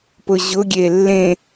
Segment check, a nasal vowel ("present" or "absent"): present